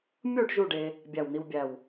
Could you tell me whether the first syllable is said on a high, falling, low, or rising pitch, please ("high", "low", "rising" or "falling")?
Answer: falling